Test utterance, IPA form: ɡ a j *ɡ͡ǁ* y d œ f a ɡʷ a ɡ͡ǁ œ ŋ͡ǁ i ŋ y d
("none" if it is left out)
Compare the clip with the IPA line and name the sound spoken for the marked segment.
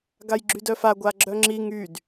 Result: ɡ͡ǁ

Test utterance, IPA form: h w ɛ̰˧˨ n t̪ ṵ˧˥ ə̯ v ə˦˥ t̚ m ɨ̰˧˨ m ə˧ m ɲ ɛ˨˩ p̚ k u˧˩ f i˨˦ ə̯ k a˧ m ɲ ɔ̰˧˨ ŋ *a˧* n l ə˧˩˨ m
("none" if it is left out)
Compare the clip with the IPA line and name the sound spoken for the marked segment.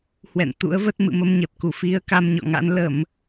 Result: a̰˧˥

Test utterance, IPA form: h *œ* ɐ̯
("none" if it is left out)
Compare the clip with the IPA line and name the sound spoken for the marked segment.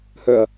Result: œ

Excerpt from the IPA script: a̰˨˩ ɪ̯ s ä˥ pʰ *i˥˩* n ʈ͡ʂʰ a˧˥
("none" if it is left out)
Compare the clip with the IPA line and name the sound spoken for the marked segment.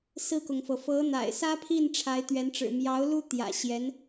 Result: i˥˩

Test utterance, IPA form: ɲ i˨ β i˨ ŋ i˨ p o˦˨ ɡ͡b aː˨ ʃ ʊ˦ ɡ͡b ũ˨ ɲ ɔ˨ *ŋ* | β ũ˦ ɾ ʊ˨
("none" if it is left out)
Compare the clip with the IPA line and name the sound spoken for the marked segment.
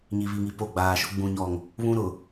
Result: ŋ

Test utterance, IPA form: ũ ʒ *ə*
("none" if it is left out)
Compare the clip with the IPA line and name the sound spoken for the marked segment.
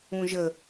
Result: ə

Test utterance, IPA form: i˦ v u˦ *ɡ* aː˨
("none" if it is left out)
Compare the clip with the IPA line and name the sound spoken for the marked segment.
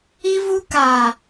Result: k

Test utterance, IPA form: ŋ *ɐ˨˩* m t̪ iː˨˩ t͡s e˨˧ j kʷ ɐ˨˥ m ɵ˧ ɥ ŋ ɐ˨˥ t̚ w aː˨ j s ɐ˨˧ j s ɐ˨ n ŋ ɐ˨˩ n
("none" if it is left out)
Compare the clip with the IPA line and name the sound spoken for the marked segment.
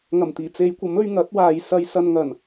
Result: ɐ˨˩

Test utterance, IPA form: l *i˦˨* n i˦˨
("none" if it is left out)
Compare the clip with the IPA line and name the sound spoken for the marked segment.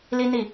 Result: i˦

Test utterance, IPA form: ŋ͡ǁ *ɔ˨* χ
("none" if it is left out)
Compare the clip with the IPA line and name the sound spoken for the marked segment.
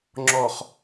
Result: ɔ˨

